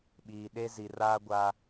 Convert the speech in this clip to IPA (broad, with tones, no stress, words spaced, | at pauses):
ɓiː˨ ɗe˦ zi˨raː˦ ɡʷa˦